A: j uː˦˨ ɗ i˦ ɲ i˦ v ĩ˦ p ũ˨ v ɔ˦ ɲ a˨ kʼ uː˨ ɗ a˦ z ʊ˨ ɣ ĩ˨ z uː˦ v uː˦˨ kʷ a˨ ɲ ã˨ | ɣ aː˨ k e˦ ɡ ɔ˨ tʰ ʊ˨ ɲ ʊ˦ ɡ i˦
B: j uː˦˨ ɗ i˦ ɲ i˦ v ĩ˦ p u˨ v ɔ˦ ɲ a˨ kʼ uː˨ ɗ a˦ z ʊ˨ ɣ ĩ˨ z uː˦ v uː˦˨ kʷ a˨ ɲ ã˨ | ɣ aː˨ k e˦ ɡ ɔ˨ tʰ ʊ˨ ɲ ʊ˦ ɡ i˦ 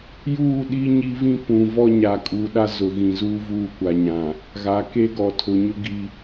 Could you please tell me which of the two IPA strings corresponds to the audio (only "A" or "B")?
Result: A